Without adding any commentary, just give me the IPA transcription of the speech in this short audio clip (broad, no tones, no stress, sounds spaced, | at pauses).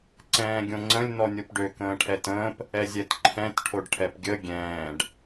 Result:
ǀ ɛ̃ː ɡʲ õ ŋ͡ǀ ə̃ lʲ n ɔ nʲ o p ɖ ø k ə̃ː ʈʰ ɛ t ə̃ː p | ɛ zʲ ɛ t ǃʰ ɛ̃ t ʈʰ o ɖ ʈʰ ɛ p ɡʲ ə ɡʲ ɛ̃ː ɖ